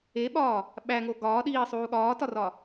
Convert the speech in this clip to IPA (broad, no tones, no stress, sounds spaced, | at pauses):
e ɓ ɒː | ɓ æ ŋ o ɡ ɒː ɗ iː sˤ uː ɠ ɒː t ɒ r ɒ